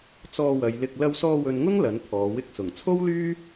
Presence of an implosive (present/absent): absent